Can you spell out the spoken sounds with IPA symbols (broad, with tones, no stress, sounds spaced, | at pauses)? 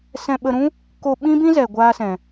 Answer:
s ɛ̃˧ ɓ ə˧ ɾ ũ˦ | k o˧ ɓ ĩ˦ b ĩ˦ z ɛ˨ ɡʷ a˦ s ɛ̃˨